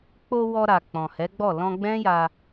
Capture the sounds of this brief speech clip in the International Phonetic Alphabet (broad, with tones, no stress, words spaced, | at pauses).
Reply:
k͡po˧ wɔ˧ɾa˨ k͡pɔ̃˨hɛ˨˦ɡ͡bɔ˦˨ lɔ̃˧ɡ͡bɛ̃˦ja˧